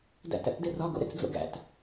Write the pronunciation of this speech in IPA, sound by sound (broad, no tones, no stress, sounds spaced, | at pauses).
d æ̰ t æ̰ t d e r ɒ ɡ o̰ ɾ ḛ t͡s d͡z o̰ ɡ æ̰ t